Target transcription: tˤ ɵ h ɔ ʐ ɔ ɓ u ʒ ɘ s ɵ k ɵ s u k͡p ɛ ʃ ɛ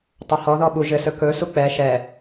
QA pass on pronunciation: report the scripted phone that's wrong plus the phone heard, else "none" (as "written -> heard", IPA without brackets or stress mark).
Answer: ʐ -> ð